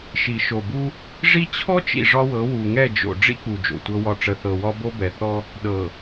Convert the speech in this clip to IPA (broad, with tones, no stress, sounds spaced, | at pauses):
ʃ i˨ ʃ o˨ b u˦ | ʐ i˦ t͡ɕʰ ɔ˦ t͡ʃ ḭ˨ ʐ ɒ˦ w ɤ˨˦ w u˨ ŋ ɛ˦˨ d͡ʒ o̰˨ ɖ͡ʐ ḭ˦ k͡p u˨ d͡ʒ o̰˨ tʷ ɤ˦ w ɒ˦ ʈ͡ʂ ə˨ θ ɤ˨ w ɒ˦ b o˦ b ɛ˨ θ ɔ˦ | ɗ ɤ˨